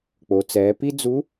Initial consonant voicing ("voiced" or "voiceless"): voiceless